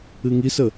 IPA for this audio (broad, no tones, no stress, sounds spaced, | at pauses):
ɨ ŋ i s ə